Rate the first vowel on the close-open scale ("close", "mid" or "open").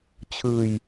close